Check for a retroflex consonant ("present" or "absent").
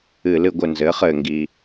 absent